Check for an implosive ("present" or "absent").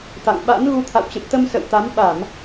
present